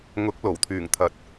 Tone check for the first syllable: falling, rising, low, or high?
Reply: rising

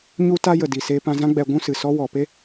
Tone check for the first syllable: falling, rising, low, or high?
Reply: high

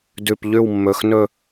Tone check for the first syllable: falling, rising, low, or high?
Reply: low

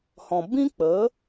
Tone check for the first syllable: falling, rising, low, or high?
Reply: low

